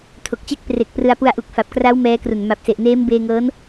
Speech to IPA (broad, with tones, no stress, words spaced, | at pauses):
tʰo˨˩k̚t͡ɕe˥˩k̚ pre˨˩k̚ prɯ˧a̯pu˧a̯ ʔu˨˩k̚fa˨˩p̚kra˦˥w mɛː˦˥kru˨˩n ma˨˩p̚se˨˩ʔ neː˦˥mbeː˧ŋɤː˦˥n